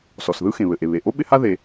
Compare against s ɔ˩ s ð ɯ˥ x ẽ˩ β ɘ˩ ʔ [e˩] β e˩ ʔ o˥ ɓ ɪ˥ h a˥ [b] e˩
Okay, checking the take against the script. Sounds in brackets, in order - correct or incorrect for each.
correct, incorrect

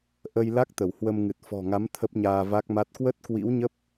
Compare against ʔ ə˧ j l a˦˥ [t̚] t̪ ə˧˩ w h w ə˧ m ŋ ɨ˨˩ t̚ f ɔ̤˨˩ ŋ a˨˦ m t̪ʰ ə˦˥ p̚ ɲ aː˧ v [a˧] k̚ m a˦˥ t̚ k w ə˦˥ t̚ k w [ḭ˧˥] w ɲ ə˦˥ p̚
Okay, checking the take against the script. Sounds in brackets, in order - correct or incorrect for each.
incorrect, incorrect, correct

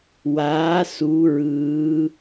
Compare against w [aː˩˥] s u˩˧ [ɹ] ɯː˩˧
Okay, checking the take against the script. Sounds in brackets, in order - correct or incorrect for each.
correct, correct

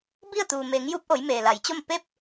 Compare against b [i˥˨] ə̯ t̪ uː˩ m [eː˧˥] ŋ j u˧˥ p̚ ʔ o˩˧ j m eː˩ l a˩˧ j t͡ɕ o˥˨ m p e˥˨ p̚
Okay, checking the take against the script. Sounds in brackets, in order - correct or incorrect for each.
correct, incorrect

